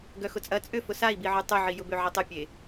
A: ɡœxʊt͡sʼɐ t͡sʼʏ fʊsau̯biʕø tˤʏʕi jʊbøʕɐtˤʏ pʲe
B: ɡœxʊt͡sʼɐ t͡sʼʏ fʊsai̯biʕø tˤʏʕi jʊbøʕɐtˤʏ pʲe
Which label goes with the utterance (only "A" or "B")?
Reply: B